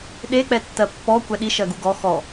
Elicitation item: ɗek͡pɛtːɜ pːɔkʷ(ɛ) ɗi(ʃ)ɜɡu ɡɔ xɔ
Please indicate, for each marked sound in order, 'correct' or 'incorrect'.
correct, correct

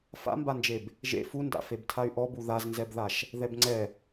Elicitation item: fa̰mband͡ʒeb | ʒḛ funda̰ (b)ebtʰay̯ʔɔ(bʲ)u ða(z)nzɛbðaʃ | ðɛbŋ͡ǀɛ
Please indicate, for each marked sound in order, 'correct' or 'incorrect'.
incorrect: f, incorrect: b, correct

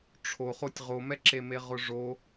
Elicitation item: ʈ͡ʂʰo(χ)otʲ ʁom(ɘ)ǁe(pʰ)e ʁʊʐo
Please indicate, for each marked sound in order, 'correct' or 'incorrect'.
correct, incorrect: ɛ, incorrect: m

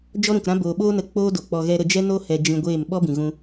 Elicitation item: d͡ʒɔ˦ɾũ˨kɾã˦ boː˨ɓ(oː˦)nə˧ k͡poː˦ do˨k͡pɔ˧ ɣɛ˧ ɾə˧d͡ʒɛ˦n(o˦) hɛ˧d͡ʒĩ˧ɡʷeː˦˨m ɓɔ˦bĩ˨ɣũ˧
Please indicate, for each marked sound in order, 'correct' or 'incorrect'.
correct, correct

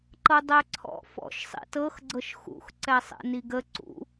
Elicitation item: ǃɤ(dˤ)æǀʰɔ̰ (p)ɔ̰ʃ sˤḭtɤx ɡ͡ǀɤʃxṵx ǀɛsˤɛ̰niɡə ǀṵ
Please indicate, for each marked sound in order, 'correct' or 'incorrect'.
correct, incorrect: f

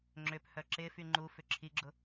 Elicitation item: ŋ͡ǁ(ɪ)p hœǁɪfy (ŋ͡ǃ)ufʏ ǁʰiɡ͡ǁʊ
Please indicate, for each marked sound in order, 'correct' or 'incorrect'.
incorrect: ʏ, correct

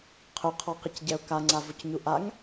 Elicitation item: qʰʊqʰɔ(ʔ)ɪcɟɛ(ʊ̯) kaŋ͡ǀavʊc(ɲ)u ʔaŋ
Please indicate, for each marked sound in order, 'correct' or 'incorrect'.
incorrect: q, correct, correct

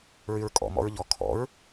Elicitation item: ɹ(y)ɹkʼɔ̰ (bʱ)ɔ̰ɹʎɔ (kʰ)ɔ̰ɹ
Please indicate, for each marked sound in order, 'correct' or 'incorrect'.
correct, incorrect: m, correct

